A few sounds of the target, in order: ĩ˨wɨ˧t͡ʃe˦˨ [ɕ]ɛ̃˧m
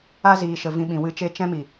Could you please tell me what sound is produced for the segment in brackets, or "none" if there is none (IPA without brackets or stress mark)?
t͡ʃ